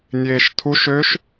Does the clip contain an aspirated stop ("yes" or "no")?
yes